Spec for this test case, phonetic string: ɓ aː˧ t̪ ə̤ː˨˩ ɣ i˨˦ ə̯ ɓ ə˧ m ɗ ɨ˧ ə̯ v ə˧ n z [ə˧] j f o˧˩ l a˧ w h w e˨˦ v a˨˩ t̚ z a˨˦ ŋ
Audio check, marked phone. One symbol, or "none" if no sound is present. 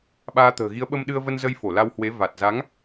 ə˧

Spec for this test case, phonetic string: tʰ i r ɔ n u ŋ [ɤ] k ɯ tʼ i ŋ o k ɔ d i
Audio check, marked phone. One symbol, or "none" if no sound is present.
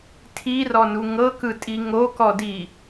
ɤ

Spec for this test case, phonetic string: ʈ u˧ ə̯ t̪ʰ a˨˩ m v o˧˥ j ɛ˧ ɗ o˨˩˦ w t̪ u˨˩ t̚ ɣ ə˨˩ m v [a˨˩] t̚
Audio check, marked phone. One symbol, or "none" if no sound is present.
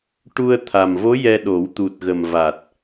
a˨˩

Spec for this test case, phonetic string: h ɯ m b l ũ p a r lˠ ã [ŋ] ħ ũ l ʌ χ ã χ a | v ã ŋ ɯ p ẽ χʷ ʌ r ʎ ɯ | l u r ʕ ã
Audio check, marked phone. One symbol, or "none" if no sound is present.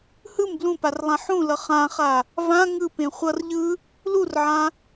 none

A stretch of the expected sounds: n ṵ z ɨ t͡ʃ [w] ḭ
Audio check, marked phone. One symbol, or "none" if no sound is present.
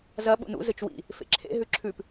w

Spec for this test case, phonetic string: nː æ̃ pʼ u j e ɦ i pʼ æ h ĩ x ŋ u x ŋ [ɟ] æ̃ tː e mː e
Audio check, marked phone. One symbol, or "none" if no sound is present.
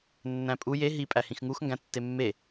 ɡ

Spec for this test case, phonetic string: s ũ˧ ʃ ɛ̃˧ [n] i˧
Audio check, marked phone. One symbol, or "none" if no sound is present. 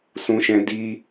d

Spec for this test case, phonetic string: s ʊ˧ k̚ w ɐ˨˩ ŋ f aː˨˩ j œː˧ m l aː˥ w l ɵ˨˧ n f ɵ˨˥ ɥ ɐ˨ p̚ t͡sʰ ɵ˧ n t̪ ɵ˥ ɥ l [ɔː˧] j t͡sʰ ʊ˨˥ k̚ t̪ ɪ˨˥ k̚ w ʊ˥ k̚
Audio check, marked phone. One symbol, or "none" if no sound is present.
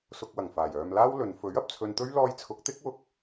ɔː˧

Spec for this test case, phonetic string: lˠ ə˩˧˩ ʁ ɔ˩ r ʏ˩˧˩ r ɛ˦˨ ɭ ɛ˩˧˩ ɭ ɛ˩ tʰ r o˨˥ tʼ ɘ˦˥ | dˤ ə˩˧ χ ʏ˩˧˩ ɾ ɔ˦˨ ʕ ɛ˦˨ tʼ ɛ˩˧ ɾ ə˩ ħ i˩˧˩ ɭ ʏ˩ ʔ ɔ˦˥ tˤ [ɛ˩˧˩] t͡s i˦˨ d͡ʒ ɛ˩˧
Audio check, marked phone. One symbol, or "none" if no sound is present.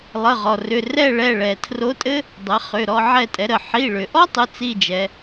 ʏ˩˧˩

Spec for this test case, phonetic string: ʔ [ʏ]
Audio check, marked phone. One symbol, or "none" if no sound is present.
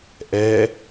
ɛ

